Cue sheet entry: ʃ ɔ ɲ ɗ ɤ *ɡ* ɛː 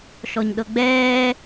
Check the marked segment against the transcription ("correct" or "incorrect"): incorrect